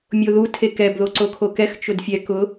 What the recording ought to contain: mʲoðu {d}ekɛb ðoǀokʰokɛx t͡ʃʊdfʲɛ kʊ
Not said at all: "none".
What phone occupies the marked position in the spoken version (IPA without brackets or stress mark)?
tʰ